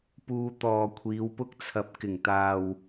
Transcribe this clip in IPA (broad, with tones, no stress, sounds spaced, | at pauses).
p uː˧ t̪ ɔː˨ kʷʰ iː˨˧ w p ʊ˥ k̚ t͡sʰ ɐ˧ p̚ k ɪ˨˩ ŋ t̪ aː˨ w